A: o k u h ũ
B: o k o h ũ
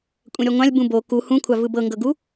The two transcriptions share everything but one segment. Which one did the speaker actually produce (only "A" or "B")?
A